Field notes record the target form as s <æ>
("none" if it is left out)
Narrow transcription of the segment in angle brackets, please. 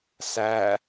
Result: æ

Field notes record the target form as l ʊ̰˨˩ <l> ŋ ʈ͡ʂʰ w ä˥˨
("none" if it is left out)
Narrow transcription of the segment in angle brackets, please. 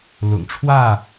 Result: none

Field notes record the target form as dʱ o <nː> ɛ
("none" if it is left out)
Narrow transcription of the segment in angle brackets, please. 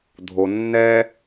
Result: nː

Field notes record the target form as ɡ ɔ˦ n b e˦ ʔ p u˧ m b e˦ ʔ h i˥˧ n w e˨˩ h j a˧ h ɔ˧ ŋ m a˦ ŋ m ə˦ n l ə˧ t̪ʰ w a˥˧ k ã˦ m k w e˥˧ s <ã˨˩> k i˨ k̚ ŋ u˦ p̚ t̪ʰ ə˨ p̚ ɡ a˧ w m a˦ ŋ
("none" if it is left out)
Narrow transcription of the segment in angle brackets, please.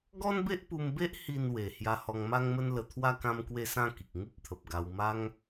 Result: ã˥˧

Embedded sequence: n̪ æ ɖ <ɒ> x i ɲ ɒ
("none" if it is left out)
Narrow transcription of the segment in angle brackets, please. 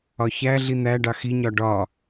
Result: ɑ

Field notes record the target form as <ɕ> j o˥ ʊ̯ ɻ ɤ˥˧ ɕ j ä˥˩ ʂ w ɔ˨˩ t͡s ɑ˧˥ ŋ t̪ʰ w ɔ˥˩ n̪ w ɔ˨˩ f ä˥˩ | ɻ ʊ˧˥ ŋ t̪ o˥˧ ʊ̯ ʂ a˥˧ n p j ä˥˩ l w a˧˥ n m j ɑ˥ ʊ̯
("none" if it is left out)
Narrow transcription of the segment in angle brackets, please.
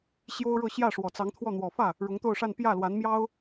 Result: ɕ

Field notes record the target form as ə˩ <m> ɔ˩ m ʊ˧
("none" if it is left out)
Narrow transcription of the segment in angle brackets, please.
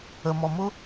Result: m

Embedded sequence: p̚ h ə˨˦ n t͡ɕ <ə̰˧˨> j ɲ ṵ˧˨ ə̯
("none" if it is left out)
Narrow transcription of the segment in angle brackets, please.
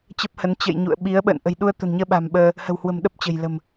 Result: ə̰˧˨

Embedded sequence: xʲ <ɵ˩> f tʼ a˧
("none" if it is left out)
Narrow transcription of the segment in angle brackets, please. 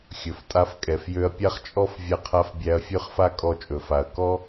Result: ɵ˩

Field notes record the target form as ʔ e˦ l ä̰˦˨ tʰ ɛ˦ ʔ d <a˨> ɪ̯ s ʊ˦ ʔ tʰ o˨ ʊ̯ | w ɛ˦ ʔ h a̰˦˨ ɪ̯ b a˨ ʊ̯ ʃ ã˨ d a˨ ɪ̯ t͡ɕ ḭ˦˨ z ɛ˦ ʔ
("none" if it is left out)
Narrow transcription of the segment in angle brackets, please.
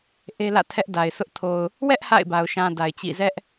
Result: a˨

